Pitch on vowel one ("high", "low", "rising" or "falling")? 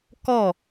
falling